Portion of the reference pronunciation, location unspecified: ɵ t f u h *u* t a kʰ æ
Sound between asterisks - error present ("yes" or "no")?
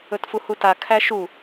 no